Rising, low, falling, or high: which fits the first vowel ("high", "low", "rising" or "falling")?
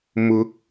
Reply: rising